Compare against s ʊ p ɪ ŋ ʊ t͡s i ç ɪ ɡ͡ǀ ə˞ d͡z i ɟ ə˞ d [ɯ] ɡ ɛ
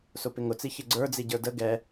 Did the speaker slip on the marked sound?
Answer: yes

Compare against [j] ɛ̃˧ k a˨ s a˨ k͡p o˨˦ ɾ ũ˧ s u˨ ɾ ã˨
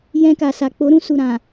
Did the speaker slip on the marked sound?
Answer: no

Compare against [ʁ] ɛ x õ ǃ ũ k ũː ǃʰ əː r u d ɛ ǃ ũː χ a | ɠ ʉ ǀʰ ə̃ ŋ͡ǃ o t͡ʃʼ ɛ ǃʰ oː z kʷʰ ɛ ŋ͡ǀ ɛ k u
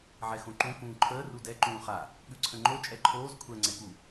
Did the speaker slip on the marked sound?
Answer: yes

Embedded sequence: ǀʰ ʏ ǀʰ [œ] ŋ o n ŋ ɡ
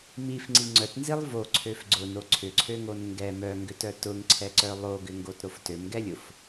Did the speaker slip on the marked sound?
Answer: yes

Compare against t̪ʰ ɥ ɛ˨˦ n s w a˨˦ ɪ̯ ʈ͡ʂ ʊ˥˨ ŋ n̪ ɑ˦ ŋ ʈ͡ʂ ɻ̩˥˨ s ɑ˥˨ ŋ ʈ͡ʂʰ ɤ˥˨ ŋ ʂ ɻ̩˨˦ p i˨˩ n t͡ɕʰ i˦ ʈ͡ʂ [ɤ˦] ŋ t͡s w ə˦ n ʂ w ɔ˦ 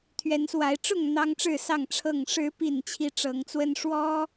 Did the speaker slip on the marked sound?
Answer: yes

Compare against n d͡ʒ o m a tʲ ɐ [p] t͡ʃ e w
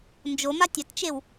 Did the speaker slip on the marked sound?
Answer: yes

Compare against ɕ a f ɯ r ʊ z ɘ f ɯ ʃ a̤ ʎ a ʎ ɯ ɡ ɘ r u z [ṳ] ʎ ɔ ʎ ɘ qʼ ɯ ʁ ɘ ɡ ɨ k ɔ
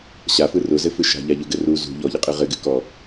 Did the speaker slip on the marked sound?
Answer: no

